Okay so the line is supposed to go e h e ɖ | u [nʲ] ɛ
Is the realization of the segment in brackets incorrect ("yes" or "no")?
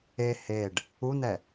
yes